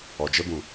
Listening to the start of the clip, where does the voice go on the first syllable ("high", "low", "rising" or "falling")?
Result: low